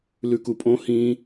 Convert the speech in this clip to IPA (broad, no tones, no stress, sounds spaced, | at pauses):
l ʉ k u pʼ õ h ĩ